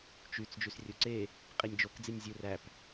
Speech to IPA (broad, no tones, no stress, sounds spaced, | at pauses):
t͡ʃ y t͡s d͡ʒ y s rʲ o ǀ e | qʼ i nʲ d͡ʒ o k d͡z i nʲ zʲ ɯ r æ p